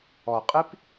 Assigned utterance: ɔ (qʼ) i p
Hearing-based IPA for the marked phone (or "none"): qʼ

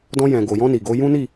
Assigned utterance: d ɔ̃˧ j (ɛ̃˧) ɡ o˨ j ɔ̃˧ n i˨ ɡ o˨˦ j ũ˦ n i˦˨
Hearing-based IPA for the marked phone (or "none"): ɛ̃˨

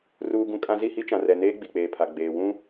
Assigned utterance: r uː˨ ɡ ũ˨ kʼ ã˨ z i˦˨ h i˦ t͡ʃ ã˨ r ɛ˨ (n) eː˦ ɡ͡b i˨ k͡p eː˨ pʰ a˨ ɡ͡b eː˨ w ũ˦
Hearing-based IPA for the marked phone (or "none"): n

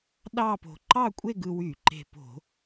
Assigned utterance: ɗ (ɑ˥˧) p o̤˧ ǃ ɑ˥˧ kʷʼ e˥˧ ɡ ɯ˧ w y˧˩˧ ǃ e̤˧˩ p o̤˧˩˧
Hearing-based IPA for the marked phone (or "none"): ɑ˥˧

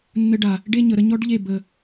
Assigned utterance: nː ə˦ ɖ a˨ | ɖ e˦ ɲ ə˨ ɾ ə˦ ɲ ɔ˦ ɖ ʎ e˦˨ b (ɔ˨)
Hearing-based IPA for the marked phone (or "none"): ə˨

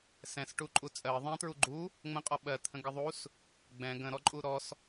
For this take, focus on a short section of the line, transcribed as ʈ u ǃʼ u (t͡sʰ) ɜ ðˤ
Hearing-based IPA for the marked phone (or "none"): t͡sʼ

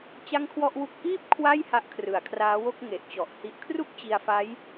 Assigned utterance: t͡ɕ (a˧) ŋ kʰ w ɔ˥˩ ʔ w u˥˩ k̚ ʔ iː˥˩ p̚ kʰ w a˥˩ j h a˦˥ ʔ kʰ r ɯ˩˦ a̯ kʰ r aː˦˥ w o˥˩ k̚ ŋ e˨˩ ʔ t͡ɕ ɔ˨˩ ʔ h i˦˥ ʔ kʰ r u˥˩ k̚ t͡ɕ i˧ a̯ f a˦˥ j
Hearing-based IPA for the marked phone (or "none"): a˥˩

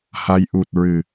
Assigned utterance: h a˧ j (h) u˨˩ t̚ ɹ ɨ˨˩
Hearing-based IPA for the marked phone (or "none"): ʔ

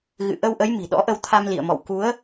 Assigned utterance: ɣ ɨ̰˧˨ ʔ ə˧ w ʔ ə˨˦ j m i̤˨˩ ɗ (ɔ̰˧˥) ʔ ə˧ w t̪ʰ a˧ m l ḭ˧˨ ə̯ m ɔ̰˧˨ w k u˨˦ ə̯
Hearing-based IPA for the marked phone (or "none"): ɔ̰˧˥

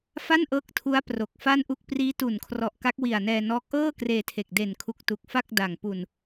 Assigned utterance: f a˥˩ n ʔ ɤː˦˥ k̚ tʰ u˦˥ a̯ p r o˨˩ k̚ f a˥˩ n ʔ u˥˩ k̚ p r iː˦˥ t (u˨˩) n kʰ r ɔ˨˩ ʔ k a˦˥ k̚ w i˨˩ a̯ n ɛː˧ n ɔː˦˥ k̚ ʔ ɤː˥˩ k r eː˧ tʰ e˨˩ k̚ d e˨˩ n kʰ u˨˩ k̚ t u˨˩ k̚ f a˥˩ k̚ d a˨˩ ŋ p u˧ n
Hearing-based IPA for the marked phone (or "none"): u˨˩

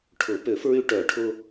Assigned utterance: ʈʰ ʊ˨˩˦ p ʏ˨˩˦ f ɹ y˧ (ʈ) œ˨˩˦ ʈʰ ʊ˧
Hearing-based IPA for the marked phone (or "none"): ʈ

